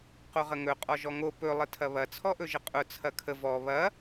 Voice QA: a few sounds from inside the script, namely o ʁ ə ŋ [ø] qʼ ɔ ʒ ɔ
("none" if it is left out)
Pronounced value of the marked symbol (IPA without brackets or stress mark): ɵ